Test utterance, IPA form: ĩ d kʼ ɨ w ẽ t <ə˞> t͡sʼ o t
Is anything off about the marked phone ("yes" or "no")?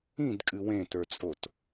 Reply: no